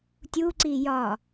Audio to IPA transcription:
tʲ u ǀ i j ɒ

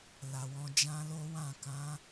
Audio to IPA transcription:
l a˨ w ɔ̃˧ d͡ʒ ã˦ l o˦ w ã˦˨ k ã˨˦

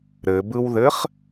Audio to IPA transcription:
ɾ ɘ b ɯ w ð ɘ χ

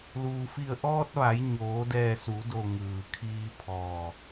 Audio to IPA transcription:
l uː˩ f i˧˩ ə̯ ʔ ɔː˧ t̚ ʋ a˩˧ j ɲ oː˩˧ d ɛː˧˩ s u˩˧ d o˧˩ ŋ ɯː˩ kʰ iː˧ pʰ ɔː˧˩

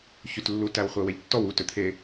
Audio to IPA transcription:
ç y t lː u t æ w χʷ ɛ w ɛ ʎ tː ɔ w u t ø t̪ʰ e

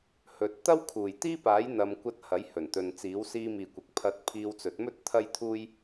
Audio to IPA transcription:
h ɵ˨˥ t̚ t̪ ɐ˥ w kʰ uː˨˩ j t̪ iː˥ p aː˨˥ j n̪ ɐ˧ m kʷ ɐ˥ t̚ h ɐ˨˥ j h ɵ˨˩ n t̪ ɵ˨ n t͡s iː˨˥ w s iː˧ m iː˨ kʷ ɐ˨ k̚ pʰ ɐ˧ t̚ pʰ iː˧ w t͡s ɵ˨˥ t̚ m ɵ˥ t̚ t̪ʰ ɐ˥ j t̪ʰ uː˥ j

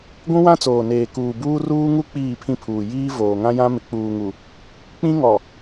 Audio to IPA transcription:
ɡʷ ũ˦ w ã˦ t͡s oː˨ n eː˨ k uː˨ b uː˦ r uː˦ ŋ u˦ k͡p iː˦˨ pʰ ĩ˦ pʰ uː˨ j iː˦ v oː˨ ŋ ã˦ j ã˦ m ɪ˨ k͡p uː˨ ŋ u˨ | k͡p ĩ˦ ŋ ɔ˨

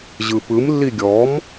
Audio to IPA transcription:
ʑ ɯ p ɯ m lː i ɡʲ ɔ m

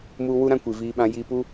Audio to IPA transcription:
m u˧ w u˦ ɾ ã˦ kʷ i˨ v iː˧ ɓ ã˧ j i˧ p u˦

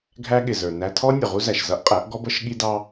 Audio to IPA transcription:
ɡʱ æ˦ ɠ ɪ˨ z ə˞˨ n æ˧ tʰ ɔ˦ nʲ ʊ˨ ʁ u˦ z æ˨ ʃ z ʌ˦ ʔ qʼ æ˨˦ ʔ ɡ ɔ˦ b ʌ˦ ʃ ɠ i˦ d ɑ˦

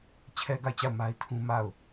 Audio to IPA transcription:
t͡ɕʰ ɛ˦ ɡ a˦˨ ɪ̯ t͡ɕ a˦˨ ʊ̯ m a˦ ɪ̯ tʰ ũ˦ m a˦˨ ʊ̯

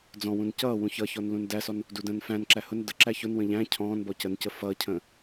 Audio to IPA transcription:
d͡z ɔ̃ w ũ n c ʌː w ũ ç ʌ ç ɔ n l ũ n d æ s ɔ n | d u d ə̃ː n f æ̃ n ǁ æ h ʊ n d ə ǁ æ ç ʊ n w ə̃ ʎ æ̃ cʰ ɔ̃ː n b ɔ c ə n c ə f ʌː cʰ ə̃ː

